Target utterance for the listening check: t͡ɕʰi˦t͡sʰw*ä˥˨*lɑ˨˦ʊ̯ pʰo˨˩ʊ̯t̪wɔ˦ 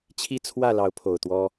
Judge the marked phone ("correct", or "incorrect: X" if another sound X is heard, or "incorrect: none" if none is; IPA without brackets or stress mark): correct